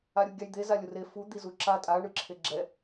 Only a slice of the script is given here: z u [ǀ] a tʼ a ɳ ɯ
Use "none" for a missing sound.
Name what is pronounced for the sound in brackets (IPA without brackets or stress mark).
ǁ